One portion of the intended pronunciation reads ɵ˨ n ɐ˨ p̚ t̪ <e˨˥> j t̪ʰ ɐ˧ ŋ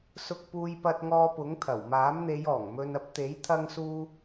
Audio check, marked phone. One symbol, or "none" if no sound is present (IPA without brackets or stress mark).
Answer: e˨˥